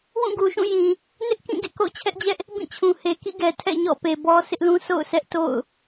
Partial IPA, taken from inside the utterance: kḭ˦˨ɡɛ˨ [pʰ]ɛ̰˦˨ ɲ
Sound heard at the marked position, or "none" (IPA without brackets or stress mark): tʰ